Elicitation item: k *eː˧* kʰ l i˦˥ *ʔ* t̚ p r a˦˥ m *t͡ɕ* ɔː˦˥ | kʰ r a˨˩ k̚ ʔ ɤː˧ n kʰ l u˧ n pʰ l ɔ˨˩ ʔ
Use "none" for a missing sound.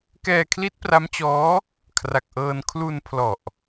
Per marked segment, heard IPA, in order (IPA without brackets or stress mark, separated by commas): ɛː˧, none, t͡ɕ